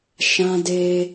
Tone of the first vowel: high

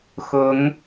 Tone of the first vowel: rising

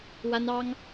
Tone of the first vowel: high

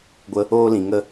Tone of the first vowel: high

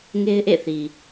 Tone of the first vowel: high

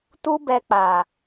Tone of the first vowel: high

